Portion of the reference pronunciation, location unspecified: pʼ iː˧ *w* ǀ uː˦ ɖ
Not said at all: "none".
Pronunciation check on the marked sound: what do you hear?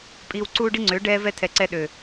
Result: w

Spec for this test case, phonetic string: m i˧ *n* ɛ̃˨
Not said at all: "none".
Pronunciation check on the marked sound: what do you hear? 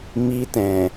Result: t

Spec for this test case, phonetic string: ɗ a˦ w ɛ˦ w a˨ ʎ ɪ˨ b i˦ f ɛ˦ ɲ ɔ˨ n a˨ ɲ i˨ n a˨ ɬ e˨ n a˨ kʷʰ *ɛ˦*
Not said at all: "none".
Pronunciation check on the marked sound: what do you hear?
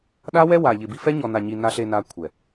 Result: ɛ˨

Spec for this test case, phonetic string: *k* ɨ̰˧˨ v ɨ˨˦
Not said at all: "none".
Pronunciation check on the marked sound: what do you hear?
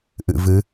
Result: ʔ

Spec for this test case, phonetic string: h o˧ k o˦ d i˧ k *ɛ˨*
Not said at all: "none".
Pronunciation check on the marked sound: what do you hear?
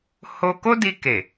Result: e˨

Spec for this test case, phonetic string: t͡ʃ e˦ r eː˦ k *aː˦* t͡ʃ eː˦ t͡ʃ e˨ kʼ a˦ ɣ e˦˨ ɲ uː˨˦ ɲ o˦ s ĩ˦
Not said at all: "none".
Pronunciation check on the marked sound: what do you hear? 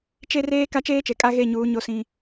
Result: a˦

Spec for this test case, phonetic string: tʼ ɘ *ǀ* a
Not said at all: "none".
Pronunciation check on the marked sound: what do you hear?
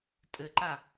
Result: ǃ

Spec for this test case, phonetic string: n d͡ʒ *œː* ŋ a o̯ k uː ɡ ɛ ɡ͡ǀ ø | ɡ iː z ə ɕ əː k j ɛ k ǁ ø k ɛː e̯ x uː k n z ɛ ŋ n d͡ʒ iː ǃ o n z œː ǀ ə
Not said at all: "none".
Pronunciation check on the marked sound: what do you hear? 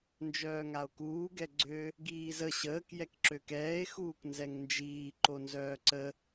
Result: œː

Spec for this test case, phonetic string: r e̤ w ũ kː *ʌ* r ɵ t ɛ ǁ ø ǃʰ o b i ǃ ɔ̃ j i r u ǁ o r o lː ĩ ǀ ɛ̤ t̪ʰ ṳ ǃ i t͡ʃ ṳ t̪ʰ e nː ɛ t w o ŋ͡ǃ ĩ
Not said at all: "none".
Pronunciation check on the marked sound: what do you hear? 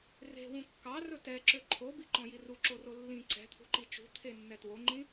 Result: ɑ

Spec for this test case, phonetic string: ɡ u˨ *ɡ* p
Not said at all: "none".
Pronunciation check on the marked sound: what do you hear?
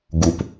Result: none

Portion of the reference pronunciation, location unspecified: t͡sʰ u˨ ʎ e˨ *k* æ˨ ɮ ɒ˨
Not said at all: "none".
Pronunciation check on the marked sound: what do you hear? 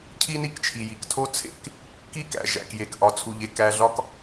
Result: k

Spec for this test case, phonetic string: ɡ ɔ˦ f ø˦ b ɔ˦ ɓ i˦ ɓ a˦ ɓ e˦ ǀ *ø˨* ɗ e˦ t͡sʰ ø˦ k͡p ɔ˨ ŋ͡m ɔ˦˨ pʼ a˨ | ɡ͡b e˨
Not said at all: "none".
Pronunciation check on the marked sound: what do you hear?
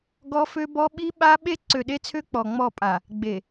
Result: ø˨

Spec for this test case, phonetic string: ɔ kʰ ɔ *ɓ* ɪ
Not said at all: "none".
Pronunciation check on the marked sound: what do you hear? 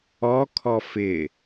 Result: f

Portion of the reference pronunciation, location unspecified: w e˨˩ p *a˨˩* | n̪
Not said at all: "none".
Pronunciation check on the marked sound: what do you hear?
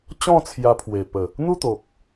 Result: ə˨˩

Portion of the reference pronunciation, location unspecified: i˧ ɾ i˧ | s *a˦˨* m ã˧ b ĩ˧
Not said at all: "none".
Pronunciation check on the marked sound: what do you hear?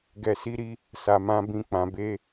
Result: a˨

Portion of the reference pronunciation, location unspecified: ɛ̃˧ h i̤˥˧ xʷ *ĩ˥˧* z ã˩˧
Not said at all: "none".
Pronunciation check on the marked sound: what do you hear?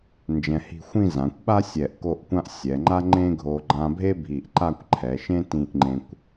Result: ĩ˥˧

